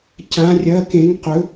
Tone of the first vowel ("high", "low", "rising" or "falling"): rising